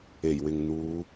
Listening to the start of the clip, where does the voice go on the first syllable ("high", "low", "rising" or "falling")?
low